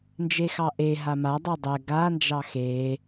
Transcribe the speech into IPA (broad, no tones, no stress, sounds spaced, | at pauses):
n d͡ʒ e x ɑ ʔ e ɦ a m a dˤ ɛ dˤ ɛ ɡ a n d͡ʒ ɑ x e